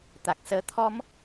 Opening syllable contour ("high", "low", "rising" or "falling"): low